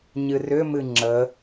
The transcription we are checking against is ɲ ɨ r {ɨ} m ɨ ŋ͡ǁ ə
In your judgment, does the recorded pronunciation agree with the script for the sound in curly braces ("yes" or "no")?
no